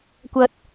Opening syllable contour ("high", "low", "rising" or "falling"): low